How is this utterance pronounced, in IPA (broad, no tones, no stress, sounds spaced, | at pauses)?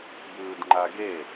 b ɯː d ŋ͡ǃ a ɡ e